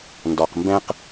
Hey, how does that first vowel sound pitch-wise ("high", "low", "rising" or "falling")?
low